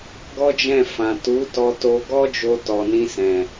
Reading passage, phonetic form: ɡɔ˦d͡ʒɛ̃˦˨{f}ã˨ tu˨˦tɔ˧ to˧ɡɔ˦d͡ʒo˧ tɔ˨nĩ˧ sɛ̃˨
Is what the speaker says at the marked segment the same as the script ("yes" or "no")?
yes